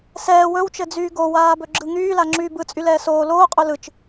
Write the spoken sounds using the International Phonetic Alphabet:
s ɛː w ɵ w t͡ʃ ɘ d͡z yː ɡ o w aː b ɵ ɡ͡ǁ ɯ ŋ yː l a ŋ͡ǁ yː b ɯ t͡sʼ y l ɛː s oː l oː qʼ ɵ l ɯ t͡ʃ

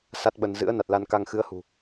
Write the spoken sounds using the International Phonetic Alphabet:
s a˦˥ t̚ ɓ ə˧ n z ɨ̰˧˥ ə̯ n a˨˩ t̚ l a˧ n k a˧ ŋ x ɨ˨˦ ə̯ h ṳ˨˩

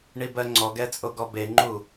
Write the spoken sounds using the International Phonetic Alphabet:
ɳ i b ɜ ŋ͡ǀ ɔ ɡ ɛ t͡sʼ o ɡ ɔ b e ŋ͡ǃ u

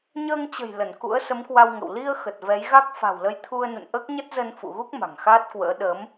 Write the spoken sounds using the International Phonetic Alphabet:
ɲ əː˧ ŋ t͡ɕ ə̤˨˩ j l ə˧˩ n k ṵ˧˥ ə̯ s ə˨˦ m k w a˧ w ŋ ə̰˧˨ w l i˧ ə̯ x ə˨˩ t̚ v ɛ˨˦ j ɣ a˦˥ k̚ f a̤˨˩ w l ə˧ j t̪ʰ u˧ ə̯ n ṵ˧˨ n ʔ əː˦˥ k̚ ɲ ə˦˥ t̚ z ə˧ n f ṵ˧˨ ɣ u˦˥ k̚ m a̤˨˩ ŋ x aː˦˥ t̚ k w ə̰ː˧˥ ɗ ə˨˦ m

